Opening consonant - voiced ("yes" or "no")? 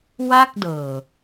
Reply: yes